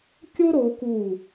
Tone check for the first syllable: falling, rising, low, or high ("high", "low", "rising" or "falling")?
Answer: high